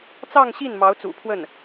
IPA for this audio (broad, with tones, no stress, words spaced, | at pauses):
t͡sɑ˥˧ŋɕi˥˩n mɑ˧˥ʊ̯t͡sṵ˨˩pʰwə˥˩n